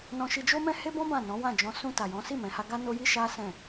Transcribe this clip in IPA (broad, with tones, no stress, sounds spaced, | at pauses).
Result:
n ɔ̃˧ ʃ i˧ d͡ʒ o˦ m ɛ̃˦ h e˦ b ɔ̃˦ b ã˦˨ n ɔ̃˨˦ w ã˦˨ d͡ʒ ɔ̃˧ s ũ˧ t a˨ j ɔ̃˨˦ s i˦˨ m ɛ̃˨ h a˧ ɡ a˦ n o˦ j i˦ ʃ a˦ s ɛ̃˦˨